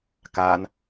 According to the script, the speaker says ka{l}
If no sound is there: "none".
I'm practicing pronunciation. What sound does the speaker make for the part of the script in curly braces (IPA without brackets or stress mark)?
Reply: n